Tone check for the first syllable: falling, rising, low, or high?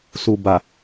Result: low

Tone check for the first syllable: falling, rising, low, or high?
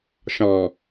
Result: low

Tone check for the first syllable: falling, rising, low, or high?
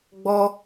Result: high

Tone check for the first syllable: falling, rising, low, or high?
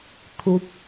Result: high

